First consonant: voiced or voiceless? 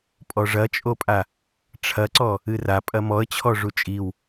voiceless